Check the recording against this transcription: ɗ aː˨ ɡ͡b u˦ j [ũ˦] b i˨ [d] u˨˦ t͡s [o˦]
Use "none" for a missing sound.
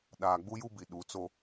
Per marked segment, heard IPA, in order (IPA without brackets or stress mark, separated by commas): u˦, ɗ, o˦